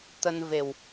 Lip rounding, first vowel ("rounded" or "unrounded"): unrounded